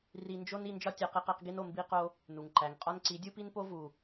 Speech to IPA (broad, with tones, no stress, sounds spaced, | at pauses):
r i˧ n d͡ʒ o˦ n i˧ n d͡ʒ ɒ˦ tʲ æ˧ q i˧ q e˧ q ɡ i˧ n o˨ m b i˧ q o˧ | n u˨ ŋ ǃ æ˨ ŋ qʼ ɒ˦ n ǀ i˨˦ dʲ u˦ p i˦ n p o˦ v u˨